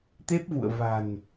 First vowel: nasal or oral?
oral